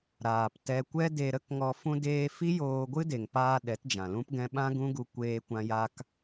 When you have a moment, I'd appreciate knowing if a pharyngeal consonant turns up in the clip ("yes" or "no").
no